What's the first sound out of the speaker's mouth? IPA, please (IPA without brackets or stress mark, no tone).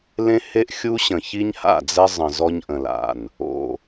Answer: l